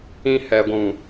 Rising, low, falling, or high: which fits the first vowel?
high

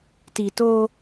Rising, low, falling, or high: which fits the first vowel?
low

